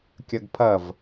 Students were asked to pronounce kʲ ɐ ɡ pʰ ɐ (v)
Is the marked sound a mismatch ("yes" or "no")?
no